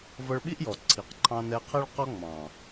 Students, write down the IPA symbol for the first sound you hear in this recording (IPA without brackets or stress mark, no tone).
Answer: v